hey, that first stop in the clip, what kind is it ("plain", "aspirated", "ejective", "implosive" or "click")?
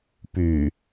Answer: plain